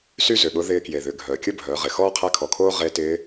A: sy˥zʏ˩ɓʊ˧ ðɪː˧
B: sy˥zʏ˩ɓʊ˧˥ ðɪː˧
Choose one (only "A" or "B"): B